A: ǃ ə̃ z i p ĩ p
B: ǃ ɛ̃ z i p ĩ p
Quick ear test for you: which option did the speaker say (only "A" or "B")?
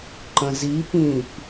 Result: A